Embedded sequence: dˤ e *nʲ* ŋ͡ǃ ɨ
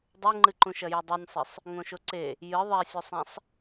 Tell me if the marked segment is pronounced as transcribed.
no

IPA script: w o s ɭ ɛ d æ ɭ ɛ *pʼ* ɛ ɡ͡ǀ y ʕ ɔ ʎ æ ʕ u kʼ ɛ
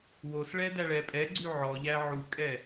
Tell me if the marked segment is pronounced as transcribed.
yes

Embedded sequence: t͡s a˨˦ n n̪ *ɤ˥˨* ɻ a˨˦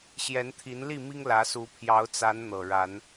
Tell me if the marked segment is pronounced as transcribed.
no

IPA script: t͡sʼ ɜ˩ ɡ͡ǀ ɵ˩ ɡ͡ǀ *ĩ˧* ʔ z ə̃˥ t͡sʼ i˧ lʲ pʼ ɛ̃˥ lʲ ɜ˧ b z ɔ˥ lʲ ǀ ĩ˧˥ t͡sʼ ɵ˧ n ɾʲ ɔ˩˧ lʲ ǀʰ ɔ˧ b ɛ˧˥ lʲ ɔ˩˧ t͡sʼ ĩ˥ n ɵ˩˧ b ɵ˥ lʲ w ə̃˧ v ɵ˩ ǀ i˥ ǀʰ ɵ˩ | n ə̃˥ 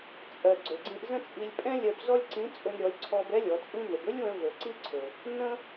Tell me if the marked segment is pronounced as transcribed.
yes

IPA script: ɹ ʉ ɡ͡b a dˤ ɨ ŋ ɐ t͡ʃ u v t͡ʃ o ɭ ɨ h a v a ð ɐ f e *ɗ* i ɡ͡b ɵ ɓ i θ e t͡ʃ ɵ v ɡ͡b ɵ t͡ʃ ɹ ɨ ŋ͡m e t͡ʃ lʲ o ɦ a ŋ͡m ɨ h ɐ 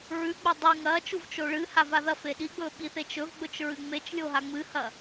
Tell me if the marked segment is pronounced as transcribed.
yes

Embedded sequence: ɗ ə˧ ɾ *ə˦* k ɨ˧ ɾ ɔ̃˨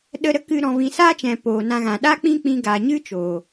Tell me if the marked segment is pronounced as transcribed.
yes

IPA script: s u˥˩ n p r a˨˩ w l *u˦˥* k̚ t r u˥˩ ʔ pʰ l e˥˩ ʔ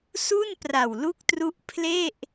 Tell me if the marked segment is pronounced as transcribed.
no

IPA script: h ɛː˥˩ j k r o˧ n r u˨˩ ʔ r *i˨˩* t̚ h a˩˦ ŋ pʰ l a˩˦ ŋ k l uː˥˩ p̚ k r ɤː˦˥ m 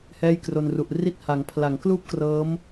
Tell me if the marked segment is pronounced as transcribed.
no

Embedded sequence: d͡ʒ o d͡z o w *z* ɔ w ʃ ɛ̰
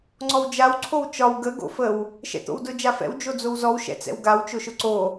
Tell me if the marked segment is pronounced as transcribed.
yes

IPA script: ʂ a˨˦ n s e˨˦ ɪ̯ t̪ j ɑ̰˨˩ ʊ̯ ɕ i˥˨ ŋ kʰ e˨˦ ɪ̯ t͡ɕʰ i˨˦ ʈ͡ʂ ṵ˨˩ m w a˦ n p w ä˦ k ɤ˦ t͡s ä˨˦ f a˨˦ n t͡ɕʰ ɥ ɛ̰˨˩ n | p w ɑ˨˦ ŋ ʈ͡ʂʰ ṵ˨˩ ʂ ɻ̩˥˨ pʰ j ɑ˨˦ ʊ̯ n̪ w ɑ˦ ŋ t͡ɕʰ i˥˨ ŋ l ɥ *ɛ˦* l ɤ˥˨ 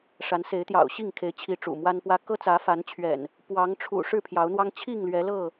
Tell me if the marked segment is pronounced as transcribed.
no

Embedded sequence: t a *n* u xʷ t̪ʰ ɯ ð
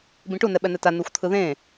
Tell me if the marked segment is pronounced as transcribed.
yes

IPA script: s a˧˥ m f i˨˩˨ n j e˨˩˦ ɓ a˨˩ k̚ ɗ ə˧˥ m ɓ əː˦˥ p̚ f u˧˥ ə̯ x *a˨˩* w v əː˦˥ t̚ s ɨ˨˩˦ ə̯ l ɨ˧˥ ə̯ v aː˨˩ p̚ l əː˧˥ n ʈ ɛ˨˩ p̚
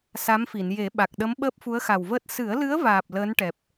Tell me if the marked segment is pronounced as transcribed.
yes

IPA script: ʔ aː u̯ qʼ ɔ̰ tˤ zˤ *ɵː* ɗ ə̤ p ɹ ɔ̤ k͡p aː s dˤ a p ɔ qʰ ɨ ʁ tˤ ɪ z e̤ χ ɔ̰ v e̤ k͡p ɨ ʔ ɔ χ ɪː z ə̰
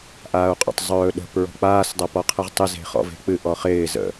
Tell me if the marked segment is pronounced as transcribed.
yes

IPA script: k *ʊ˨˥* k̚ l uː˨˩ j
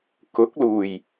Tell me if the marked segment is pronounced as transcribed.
yes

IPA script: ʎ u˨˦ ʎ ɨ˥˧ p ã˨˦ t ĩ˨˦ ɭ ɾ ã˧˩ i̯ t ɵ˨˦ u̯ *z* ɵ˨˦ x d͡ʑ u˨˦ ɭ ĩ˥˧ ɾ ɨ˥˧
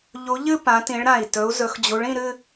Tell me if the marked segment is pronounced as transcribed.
yes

